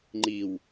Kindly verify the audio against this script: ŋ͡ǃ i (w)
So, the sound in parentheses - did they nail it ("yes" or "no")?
yes